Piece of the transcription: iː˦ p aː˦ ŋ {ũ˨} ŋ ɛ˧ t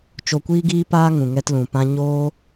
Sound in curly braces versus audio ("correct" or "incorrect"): correct